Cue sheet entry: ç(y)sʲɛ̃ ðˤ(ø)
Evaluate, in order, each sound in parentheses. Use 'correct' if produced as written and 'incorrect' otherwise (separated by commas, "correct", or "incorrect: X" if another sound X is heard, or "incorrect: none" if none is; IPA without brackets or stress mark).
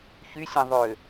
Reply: correct, correct